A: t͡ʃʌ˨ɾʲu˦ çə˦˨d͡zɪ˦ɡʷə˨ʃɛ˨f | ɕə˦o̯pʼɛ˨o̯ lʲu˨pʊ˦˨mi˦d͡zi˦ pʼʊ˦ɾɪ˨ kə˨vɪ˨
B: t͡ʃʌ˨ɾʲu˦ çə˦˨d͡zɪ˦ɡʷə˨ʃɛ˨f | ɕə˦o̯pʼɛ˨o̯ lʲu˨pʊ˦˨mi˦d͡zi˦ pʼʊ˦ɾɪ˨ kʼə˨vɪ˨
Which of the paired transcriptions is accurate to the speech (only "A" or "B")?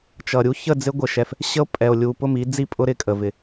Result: B